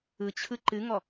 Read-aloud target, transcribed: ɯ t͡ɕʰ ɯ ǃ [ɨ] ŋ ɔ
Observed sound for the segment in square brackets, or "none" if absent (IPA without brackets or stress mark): ɨ